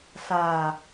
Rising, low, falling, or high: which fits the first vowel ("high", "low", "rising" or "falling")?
low